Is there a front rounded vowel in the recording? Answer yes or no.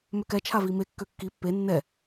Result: yes